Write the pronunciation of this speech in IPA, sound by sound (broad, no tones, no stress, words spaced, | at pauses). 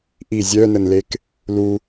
ʔi zʲœnənlek | lu